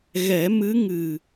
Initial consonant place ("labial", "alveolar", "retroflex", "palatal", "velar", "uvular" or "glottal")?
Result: velar